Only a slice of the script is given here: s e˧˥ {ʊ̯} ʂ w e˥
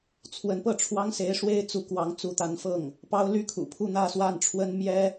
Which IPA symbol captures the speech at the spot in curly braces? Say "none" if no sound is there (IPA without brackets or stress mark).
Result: ɪ̯